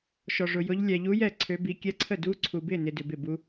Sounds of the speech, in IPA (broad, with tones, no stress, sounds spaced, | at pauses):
ʃ ɔ˧ ʐ ʊ˧ j ʊ˦˥ ʎ lʲ ɛ˧ ʎ u˦˥ j ɛ˥˨ ǀʰ ø˦˥ b i˦˥ kʲ ɛ˦˥ ǀʰ ə˥˨ d u˦˥ ǀʰ u˧ b ɪ˥˨ n ɪ˧ d ʏ˧ b ɪ˥˨ b u˦˥